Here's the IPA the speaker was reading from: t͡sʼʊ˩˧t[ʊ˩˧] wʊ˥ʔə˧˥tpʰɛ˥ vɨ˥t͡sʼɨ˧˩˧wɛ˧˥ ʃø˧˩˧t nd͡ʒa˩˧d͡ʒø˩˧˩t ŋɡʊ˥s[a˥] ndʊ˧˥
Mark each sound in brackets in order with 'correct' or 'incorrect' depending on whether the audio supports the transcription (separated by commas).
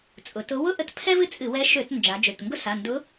incorrect, incorrect